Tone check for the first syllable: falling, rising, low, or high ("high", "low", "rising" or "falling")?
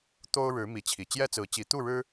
high